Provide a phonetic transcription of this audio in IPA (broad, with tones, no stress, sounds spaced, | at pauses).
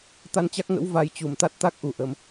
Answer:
t̪ a˧ n t͡ɕ a˦˥ k̚ ŋ ə̰˧˥ w v a˨˦ j t͡ɕ u˨˩ m t̪ a˦˥ t̚ t̪ a˦˥ k̚ ʔ u˨˩ ʔ ə˨˩ m